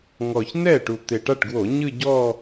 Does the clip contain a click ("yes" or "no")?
no